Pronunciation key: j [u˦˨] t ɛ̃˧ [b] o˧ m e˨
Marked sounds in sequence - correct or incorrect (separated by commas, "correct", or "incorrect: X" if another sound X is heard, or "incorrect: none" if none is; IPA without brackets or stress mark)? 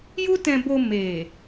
incorrect: u˦, correct